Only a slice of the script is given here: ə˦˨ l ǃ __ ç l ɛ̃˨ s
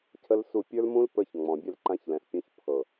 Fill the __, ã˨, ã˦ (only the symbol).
ã˦